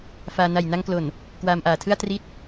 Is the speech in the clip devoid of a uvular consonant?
yes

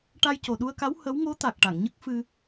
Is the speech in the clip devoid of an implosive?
no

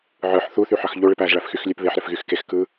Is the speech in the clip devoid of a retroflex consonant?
no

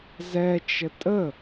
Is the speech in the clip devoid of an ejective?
no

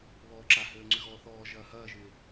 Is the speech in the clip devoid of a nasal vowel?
yes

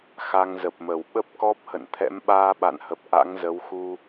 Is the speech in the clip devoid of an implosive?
no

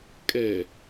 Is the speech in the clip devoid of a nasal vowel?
yes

